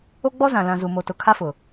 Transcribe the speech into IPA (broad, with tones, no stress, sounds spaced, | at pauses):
o˦ ɡ͡b ɔ˦ z ã˨ l ã˨ z u˨ m o˨ t ʊ˨ kʰ a˦ f ʊ˨